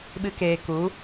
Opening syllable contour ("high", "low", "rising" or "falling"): high